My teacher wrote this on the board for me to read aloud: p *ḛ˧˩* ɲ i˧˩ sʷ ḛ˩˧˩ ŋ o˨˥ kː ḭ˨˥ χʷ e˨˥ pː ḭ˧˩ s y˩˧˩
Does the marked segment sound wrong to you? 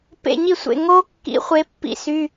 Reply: no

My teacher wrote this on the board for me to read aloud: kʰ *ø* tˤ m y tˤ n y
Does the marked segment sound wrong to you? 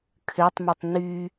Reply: no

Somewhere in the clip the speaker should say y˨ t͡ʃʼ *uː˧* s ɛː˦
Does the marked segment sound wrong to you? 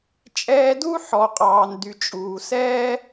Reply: yes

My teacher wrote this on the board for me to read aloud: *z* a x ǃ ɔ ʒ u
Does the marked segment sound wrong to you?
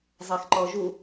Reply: yes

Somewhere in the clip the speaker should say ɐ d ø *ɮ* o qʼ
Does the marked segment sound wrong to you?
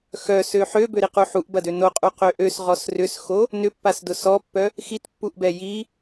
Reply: yes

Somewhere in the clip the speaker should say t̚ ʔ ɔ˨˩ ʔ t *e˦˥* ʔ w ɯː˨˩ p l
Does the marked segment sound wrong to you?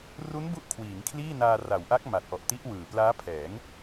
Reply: yes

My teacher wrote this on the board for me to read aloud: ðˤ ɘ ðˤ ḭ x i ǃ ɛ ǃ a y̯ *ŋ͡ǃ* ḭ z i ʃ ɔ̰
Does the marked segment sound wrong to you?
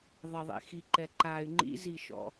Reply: no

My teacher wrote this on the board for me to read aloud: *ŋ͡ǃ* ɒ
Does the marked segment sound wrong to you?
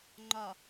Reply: no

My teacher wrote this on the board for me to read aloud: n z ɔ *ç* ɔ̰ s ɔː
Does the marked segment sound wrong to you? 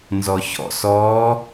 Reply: no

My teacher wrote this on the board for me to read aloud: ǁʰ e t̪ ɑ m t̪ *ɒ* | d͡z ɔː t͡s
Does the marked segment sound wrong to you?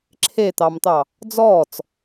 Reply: yes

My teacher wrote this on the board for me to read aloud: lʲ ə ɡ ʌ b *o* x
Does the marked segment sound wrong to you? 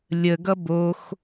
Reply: no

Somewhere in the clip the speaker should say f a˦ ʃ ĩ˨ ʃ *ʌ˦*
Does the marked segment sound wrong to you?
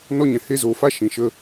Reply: yes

